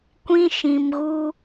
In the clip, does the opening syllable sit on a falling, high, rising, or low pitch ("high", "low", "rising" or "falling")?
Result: high